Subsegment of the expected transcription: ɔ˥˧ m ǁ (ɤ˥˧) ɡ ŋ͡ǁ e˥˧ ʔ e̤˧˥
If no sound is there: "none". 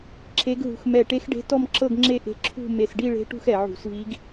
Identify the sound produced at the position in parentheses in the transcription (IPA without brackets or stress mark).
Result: ɤ˥˧